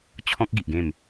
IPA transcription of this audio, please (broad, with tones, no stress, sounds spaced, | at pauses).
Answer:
t͡ɕʰ ɔ̃˦ k̚ ɡ i˨ ʔ ɡ ẽ˥˧ m